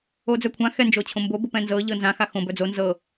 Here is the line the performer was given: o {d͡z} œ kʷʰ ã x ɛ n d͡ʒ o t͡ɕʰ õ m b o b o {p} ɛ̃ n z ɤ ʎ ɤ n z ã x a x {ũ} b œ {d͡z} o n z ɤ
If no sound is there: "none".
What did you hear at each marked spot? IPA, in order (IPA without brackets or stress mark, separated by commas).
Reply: d͡z, p, õ, d͡z